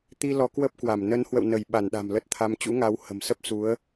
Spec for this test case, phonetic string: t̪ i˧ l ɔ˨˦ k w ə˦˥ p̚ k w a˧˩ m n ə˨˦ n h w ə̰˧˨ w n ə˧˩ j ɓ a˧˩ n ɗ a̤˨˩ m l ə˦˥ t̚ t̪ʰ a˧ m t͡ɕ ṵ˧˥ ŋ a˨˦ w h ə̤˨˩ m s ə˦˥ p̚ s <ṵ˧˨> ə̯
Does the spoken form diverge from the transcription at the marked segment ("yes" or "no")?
yes